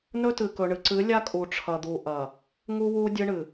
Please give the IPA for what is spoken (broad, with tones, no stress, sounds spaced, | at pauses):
n ɵ˦ t ɨ˨ k ɵ˨ ɳ ɨ˨ ǀ ɨ˨˦ lʲ a˦ kʼ u˨ ʈ͡ʂʰ ɐ˨ d̪ u˨ ʔ ɐ˨ | ŋ u˦ w u˦ dʲ ɨ˦ ɳ ɨ˨